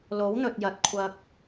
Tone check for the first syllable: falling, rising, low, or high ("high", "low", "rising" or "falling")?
rising